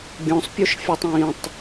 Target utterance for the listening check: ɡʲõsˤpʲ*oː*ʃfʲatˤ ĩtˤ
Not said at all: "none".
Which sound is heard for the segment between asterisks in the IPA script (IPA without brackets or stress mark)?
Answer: o